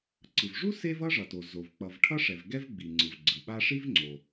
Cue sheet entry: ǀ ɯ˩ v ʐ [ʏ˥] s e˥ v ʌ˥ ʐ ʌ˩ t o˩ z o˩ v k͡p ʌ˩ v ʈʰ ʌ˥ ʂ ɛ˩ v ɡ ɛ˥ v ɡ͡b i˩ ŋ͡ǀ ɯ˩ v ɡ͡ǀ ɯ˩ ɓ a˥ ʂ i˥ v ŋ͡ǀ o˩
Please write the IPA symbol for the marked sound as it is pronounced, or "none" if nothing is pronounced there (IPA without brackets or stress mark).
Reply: u˥